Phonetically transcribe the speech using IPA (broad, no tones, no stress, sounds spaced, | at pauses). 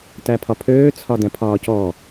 t æ pʰ ɒ pʰ øː t͡sʰ ɒ d ɛ̃ pʰ ɒː c ɔː